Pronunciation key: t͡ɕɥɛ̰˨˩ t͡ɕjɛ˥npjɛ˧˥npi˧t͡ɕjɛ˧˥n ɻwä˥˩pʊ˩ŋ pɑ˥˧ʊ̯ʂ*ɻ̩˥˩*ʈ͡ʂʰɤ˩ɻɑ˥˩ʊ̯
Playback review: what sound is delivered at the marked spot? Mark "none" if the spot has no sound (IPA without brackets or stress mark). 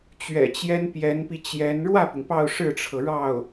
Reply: ɻ̩˥˩